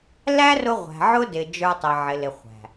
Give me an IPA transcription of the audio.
l æ˦ r ʊ˧ ʁʷ æ̤˨ ʕ ʊ˦ d ɪ˨ d͡ʒ ə˞˧ tˤ ɪ˨ ʕ ɪ˨ l ɪ˨ χʷ æ̤˨

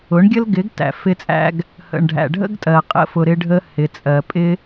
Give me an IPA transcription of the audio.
ʊ˨˦ ɳ ɡʲ ə˦ l ɡ ɪ˨˦ ɡ t æ̰˨ f ɪ˦ t͡sʼ æ̰˦ ɡ | h ə̰˨ ɳ ɖʱ æ̰˨ ɖʱ ə̰˦ ɡ tʼ ɜ˨ qʼ ə̰˦ f ʊ˧ ɾ ɪ˦ ɖʱ ə˦ h ɪ˨ t͡sʼ ɜ˨ pʼ ɪ˦

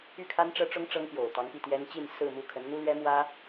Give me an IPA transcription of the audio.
y˥˩ kʰ a˥ n ʈ͡ʂ ɤ˥ ʈ͡ʂ ʊ˥ ŋ ʈ͡ʂ ɤ˥ ŋ p j o˨˩ ʊ̯ t̪ ɑ˧˥ ŋ p i˥˩ t̪ j ɛ˥ n t͡ɕ i˥˧ n s ɹ̩˥˧ m u˥˩ kʰ ə˧˥ n n̪ u˥ l ɥ ɛ˥ m w ä˥

